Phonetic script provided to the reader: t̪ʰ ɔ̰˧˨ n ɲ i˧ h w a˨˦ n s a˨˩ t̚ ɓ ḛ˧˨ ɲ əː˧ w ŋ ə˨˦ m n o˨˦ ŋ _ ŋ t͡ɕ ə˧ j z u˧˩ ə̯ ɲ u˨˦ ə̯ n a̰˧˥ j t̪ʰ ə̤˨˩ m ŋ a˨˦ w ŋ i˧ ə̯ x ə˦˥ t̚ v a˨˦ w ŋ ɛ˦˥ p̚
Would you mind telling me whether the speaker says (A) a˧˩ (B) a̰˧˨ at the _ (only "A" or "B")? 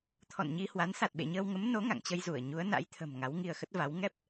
B